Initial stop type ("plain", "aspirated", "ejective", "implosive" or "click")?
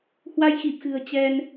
plain